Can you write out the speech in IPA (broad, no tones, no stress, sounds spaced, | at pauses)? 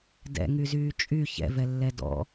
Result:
d ɛ̰ ŋ y z yː t͡ʃʼ y ç ɛ̰ v ɛ lː ɛ d ɔ̰